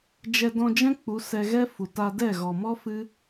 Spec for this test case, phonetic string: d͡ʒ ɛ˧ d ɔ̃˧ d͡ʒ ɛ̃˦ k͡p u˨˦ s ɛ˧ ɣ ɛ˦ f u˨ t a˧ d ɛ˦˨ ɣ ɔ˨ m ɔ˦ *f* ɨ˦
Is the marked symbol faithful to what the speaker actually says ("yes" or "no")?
yes